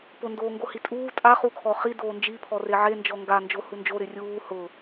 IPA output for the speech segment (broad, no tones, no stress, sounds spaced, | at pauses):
p ʊ n d oː ŋ ɡ o h i tʼ uː tʼ a χ u kʰ ɔ χ i d oː n d͡ʒ i pʰ ɔ r e ʕ e n d͡ʒ ɔ ŋ ɡ a n d͡ʒ o h u n d͡ʒ o ɾ ɪ rʲ uː h ʊ